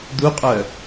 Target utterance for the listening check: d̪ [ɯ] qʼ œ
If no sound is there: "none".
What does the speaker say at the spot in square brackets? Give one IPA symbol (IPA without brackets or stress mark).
u